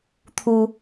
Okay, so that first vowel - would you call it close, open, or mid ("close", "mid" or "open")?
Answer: close